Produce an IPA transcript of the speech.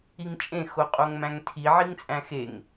i ŋ t͡ʃʼ ẽ x o qʼ o ŋ m æ̃ ŋ tʰ i ʕ i ŋ t͡sʼ æ̃ x e ŋ

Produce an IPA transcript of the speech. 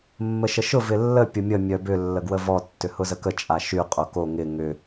mː ə ʃ ə ʃ ʊ v ɪ lː ə pʲ ʊ mʲ ə mʲ œ b ʏ lː ə ɡ w ə v ɔ tː ʏ h ʊ z ə k ə t͡ʃʼ a ʃ y qʼ o k o ŋ ɪ ŋ ʏ

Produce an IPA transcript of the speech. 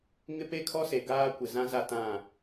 ŋ ɪ˦ p e˦ kʰ ɔ˦ s e˨ ɡ aː˦ kʷ ɪ˨ z ã˦ z a˦ t ã˦˨

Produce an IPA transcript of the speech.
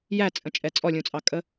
j æ t͡sʼ ə̃ t͡ʃʼ ɛ t͡sʼ ɔ lʲ ũ t͡sʼ ɑ kʼ ə

